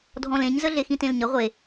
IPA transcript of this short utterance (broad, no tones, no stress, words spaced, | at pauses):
dʱɔ̃lẽɲzə ɮexĩtẽlɲə ʁʷe